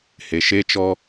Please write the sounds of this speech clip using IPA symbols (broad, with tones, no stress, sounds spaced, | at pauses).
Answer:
h e˨ ʃ e˦ t͡ʃ ɔ˦